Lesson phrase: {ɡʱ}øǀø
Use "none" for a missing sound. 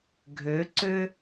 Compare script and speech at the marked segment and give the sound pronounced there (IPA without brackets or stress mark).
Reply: ɡʱ